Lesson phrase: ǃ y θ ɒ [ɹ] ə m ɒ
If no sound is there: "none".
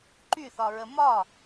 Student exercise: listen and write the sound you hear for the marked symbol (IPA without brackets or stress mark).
ɹ